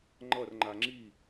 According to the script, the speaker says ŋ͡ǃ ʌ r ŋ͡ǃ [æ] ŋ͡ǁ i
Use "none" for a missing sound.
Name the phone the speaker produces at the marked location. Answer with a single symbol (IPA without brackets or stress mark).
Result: a